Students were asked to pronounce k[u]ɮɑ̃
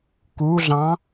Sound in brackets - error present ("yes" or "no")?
no